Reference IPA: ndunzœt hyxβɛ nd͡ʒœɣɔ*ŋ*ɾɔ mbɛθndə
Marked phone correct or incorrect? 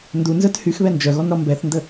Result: incorrect